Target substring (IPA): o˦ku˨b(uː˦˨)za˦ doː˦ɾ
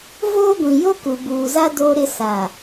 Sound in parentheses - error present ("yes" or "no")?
yes